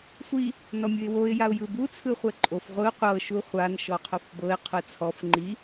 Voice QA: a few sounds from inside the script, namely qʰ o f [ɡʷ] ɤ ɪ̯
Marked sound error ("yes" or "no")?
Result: yes